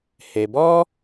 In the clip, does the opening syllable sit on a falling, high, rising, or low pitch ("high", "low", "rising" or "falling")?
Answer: low